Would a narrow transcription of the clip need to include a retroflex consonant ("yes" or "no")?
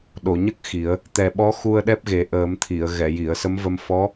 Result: no